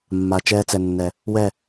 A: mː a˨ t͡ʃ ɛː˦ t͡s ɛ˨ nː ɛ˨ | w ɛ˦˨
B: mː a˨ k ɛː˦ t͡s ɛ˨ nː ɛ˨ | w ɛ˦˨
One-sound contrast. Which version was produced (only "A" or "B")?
A